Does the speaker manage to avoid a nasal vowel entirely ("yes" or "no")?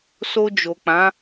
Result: no